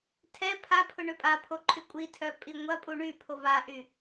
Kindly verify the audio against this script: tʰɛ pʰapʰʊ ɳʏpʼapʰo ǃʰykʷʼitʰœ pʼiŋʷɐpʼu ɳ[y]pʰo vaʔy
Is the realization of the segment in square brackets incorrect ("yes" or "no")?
no